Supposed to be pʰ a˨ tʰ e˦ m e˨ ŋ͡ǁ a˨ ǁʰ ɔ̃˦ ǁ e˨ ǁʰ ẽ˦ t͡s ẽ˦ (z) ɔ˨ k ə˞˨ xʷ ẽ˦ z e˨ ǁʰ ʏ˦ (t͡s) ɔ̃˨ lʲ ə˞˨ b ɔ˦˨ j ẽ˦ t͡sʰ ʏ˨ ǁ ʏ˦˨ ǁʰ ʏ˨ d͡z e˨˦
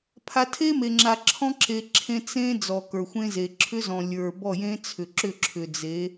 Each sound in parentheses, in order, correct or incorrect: incorrect, incorrect

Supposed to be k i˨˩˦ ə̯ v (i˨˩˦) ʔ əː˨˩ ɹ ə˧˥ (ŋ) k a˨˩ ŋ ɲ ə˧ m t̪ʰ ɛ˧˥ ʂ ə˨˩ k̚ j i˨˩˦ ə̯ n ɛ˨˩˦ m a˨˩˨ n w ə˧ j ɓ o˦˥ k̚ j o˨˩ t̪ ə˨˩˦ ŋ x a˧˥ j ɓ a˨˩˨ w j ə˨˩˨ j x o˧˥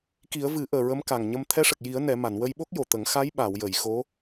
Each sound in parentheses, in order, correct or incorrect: incorrect, incorrect

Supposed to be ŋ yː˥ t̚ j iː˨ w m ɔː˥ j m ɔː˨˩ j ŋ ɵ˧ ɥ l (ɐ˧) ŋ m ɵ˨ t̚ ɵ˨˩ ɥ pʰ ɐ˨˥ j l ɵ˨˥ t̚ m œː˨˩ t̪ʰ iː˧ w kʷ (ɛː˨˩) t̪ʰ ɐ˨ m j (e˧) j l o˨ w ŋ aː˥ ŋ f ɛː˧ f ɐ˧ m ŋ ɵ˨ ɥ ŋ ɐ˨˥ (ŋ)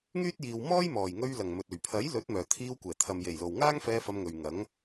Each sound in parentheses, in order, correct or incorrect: incorrect, correct, incorrect, correct

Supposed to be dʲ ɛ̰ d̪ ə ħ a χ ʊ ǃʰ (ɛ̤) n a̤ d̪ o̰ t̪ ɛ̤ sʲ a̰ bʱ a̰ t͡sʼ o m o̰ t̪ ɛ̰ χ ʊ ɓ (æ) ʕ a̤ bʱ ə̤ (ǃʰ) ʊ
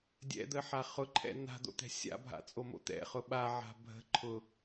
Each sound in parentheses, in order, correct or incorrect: incorrect, incorrect, correct

